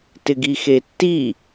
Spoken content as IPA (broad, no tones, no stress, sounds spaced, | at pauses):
t ɪ ɡ i x e tː i